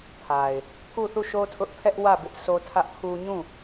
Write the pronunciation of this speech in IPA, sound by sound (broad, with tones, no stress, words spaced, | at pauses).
pʰa˨ɪ̯ | ku˦˨θu˦˨ʃo˦ tʰʊ˦ʔ pʰɛ˦ʔwä˦˨ bɪ˦ʔso˦tʰä˦ʔkʰu˦ ɲũ˦˨